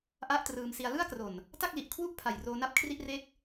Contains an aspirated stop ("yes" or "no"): yes